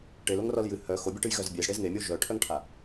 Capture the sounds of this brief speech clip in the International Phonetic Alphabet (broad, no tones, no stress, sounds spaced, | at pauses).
ʈ e l o ŋ r ɔ l j ɨ h œ x o bʲ ɛ ʈ ɨ j ɣ œ z bʲ e z ɽ e z ŋ e mʲ o ʒ œ ʈʰ œ ŋ ʈʰ a